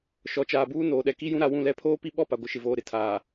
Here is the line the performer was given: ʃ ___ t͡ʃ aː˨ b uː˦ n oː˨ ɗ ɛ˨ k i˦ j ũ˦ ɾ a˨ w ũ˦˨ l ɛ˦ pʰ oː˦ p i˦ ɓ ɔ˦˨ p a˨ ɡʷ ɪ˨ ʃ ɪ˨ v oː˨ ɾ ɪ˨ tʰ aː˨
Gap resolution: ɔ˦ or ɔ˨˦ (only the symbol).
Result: ɔ˨˦